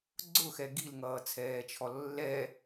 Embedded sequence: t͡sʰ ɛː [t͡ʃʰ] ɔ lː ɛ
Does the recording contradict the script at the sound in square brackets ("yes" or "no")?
no